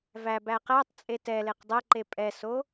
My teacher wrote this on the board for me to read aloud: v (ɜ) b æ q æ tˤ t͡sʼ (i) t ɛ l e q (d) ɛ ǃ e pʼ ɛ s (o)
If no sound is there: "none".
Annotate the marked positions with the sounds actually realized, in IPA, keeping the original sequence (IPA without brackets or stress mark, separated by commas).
æ, e, dˤ, o